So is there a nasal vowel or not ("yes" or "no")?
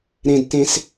yes